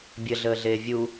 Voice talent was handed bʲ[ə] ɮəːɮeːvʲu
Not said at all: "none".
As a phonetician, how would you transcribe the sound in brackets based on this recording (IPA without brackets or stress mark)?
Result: ə